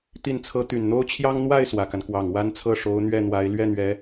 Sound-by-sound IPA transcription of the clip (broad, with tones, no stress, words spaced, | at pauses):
t̪i˥˩nt͡sʰɤ˥ t̪y˨˩nn̪o˥ʊ̯t͡ɕʰjɑ˥ŋ n̪wa˥˩ɪ̯ swä˨˩ka˦n kwɑ˨˩ŋwa˥nt͡sʰɤ˥˩ ʂo˧˥ʊ̯n̪ɥɛ˥˩n̪wa˧˥ɪ̯ lɥɛ˥˩n̪ɥɛ˧˥